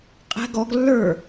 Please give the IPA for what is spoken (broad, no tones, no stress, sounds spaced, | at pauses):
qʼ ɛ̤ ɡ ɔ ɡ lː ə˞